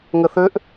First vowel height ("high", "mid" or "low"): mid